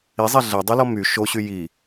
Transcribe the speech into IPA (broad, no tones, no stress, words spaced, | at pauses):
izˤɛ ɮɛdˤylɔ my ʃoɕy ji